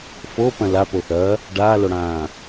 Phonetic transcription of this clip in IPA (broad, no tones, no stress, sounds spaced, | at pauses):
f o p ɐ̃ l a p o θ ɐ | ɖ aː l o ɽ ãː